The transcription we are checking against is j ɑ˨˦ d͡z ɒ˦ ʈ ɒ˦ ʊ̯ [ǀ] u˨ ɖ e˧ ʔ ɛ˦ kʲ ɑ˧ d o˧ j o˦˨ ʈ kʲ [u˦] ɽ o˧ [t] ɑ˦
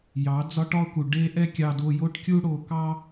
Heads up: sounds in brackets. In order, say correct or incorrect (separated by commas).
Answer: incorrect, correct, incorrect